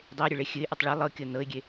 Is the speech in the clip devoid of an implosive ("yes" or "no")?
yes